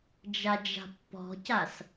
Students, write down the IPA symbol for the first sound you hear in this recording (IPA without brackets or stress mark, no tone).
d͡ʒ